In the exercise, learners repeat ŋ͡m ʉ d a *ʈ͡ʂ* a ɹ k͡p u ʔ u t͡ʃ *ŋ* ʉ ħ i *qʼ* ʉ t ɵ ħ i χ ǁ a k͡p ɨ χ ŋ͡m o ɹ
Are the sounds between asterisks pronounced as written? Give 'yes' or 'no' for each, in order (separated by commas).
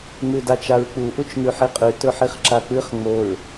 no, yes, yes